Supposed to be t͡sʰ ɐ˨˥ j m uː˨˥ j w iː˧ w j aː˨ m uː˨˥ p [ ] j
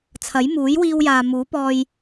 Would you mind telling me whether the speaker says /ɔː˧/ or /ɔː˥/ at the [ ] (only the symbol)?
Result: ɔː˧